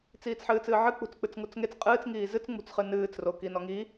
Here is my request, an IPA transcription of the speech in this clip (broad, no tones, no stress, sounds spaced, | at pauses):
t͡s iː t͡s ħ ɨː t͡s ɨː ʕ ɨ k͡p ṳ t͡s k͡p ɨ t͡s ŋ u t͡s ŋ e t͡s qʼ ɨː t͡s ŋ iː z ɨ t͡s ŋ͡m ṳ t͡s χ ɨ n ɨː t͡s r o k i n ɔ ŋ i